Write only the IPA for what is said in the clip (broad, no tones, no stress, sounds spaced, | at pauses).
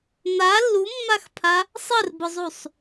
n̪ a lː u mː a x pʰ a | sˤ ɘ r b ʊ zˤ u sˤ